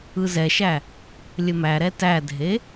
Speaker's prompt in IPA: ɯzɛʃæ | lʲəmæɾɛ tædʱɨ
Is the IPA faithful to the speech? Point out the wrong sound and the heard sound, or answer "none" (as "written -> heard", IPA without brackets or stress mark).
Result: ɨ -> e